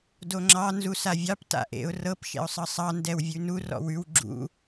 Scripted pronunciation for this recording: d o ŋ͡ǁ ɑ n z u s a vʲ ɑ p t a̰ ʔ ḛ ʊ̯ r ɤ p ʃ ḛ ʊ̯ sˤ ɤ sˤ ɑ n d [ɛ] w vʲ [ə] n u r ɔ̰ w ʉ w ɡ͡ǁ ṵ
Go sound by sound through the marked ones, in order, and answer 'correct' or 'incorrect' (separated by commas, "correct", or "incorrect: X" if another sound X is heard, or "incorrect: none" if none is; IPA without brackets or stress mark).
correct, incorrect: ʉ